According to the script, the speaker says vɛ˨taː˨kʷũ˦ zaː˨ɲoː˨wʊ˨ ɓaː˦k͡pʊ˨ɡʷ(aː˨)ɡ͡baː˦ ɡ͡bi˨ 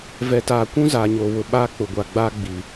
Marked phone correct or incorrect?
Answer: incorrect